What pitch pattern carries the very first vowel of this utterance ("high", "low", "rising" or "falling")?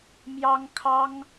high